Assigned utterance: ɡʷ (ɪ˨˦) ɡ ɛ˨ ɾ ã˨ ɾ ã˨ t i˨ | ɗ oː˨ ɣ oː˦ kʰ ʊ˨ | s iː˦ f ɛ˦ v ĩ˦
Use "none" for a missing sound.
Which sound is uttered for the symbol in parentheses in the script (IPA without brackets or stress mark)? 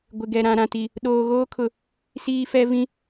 ɪ˨